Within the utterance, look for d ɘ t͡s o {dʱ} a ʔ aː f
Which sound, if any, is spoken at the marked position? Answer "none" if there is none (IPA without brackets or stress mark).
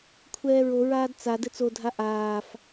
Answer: dʱ